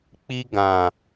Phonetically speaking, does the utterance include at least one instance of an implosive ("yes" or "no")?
no